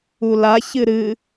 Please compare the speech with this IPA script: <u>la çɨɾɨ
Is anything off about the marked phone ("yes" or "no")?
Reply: no